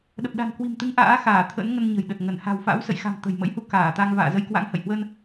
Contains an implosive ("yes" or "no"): yes